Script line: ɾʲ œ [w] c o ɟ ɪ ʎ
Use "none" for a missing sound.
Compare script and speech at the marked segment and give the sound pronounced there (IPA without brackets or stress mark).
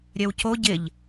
w